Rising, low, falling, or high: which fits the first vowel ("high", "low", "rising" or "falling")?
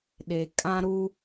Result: low